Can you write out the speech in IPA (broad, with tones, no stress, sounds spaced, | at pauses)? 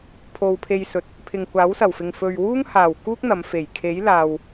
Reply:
pʰ o˧ w pʰ e˧ j s ɵ˨ t̚ | pʰ ɪ˨ ŋ kʷ aː˨˥ w s ɐ˨˩ w f ɪ˨ ŋ f ɵ˨ ɥ w uː˥ ŋ h aː˨˩ w k uː˥ k̚ n̪ ɐ˨˧ m f e˨˩ j kʰ e˨˥ j l aː˨ w